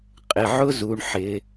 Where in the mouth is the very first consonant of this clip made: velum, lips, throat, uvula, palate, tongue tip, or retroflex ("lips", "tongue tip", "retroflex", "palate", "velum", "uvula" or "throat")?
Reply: uvula